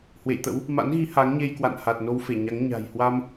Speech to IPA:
hwḛ˧˨jt̪ə̰˧˥w | ma̰˧˥nɣi˨˦ ha˨˦ŋɲe˧j kwa̰˧˨nha˨˩t̚ no˧wfe˧˩ ɲa˨˦ŋ ɲa̤˨˩jhwa˧m

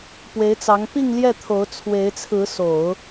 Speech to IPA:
pwe˧˥ɪ̯t͡sɑ˧˥ŋ pi˥˧ŋljɛ˥˩ t̪ʰo˧˥ʊ̯t͡sʰwe˧˥ɪ̯t͡sʰɹ̩˧˥ so˨˩˦ʊ̯

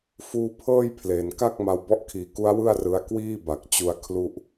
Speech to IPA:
fuː˦˥pʰɤː˥˩jpʰle˨˩nka˥˩k̚ ma˧wbɔ˦˥ʔkʰiː˩˦ku˦˥a̯ wɯ˥˩a̯rɯ˧a̯kwiː˥˩ ba˨˩k̚t͡ɕu˧a̯ kʰlu˥˩ʔ

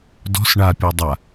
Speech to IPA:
dɔ̤s ɳapʲɔ dˤa

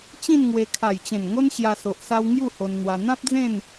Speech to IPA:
t͡ɕĩ˥˧nŋwe˧ kʰa˨˩jt͡ɕẽ˨˩nŋo˦n ɕja˧so˨ʔsa˦w ŋju˥˧ho˧nn̪wa˧ n̪ã˦p̚d͡zẽ˥˧n

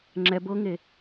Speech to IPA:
ŋ͡ǁɛb ɤŋe

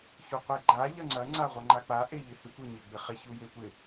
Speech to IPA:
çuqʷeɡ͡ǃa ʎɐŋ͡ǀɐ ŋ͡ǀaʁʷɐŋ͡ǃak͡pa ʔeʎɪhɪtʷɪ ɲeɡ͡bɪχɪ çujetʷɪ

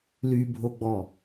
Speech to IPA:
lybʱoɡ͡bɔ

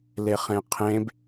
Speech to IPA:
leχẽqʰẽb

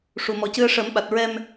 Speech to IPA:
ʂu˨˩mɔ˨˩cɨ˧ə̯ ʂə˨˩˦mɓa˨˩t̚ ɹɛ˧m

